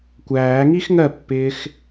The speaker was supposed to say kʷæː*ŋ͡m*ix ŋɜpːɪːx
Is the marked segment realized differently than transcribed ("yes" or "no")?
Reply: yes